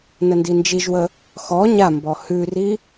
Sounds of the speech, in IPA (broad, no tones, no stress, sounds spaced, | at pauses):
n ə n d i n d͡ʒ i ʒ w ə | x ɔ ɲ a m b ɔ h ʉ r i